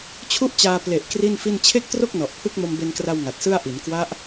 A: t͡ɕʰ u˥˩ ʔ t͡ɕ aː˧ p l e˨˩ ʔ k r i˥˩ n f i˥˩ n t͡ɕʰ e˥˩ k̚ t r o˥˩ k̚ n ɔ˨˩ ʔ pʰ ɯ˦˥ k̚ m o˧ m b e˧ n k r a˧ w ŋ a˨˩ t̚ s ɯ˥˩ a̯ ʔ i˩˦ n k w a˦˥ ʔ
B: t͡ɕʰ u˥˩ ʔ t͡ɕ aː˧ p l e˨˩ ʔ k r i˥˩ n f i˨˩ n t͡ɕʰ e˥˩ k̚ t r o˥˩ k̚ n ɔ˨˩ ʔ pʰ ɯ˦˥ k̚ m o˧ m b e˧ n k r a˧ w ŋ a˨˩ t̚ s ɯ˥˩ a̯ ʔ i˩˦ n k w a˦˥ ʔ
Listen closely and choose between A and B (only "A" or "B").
A